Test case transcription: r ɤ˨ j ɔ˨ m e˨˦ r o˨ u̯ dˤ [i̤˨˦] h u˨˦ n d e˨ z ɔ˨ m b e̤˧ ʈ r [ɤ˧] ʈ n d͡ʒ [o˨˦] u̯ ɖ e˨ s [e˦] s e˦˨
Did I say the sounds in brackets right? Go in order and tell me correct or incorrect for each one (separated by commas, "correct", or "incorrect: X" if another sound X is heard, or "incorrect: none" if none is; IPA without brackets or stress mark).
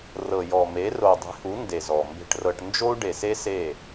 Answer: correct, correct, incorrect: o˦, correct